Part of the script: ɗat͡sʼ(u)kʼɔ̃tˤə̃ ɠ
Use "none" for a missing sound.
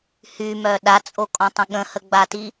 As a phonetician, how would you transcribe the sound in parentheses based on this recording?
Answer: o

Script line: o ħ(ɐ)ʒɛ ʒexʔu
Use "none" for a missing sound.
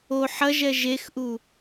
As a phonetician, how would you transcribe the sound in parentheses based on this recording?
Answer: ɐ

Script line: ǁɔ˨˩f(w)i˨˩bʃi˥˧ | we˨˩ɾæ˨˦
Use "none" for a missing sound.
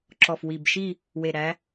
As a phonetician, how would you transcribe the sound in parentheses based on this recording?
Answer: w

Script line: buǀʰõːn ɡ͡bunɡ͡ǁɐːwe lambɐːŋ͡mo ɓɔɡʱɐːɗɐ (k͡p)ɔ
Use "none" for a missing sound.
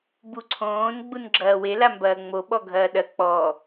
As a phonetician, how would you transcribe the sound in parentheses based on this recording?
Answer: k͡p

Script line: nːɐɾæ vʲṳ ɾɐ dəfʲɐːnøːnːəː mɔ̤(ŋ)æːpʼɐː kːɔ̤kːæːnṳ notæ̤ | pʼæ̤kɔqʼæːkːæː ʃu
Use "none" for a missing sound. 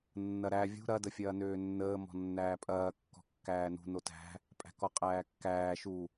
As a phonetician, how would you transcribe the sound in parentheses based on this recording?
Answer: nː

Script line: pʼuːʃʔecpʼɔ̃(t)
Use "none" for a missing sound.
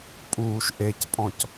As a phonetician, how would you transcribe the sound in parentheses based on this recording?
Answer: c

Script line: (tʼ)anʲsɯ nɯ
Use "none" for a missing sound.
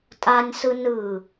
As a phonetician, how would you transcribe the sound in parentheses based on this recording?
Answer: tʼ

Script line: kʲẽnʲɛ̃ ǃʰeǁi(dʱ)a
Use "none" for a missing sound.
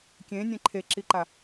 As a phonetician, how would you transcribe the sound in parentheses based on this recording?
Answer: ǃ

